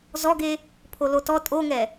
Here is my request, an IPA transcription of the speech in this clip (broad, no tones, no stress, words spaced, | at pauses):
zɔɡe | pʰolotɔ tʼoŋɛ